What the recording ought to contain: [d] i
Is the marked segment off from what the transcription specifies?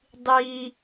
yes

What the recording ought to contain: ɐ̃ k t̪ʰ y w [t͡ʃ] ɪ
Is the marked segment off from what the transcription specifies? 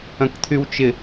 no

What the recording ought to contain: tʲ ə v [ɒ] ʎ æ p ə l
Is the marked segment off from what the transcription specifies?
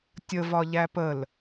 no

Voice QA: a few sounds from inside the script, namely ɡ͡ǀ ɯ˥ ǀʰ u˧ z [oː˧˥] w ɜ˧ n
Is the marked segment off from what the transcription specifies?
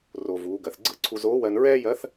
no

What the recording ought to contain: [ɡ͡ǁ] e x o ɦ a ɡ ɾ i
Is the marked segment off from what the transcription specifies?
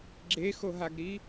no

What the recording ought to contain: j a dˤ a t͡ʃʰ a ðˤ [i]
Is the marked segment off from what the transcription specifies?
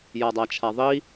no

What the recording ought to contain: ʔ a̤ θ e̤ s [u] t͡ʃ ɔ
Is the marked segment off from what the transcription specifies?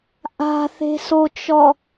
yes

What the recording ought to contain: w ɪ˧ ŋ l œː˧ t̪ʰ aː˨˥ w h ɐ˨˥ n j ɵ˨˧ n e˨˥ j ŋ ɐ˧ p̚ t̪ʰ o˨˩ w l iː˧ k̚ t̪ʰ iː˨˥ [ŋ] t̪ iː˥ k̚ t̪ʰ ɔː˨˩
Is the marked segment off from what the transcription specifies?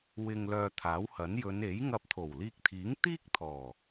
no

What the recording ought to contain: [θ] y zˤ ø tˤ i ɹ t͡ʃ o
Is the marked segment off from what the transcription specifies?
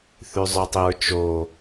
no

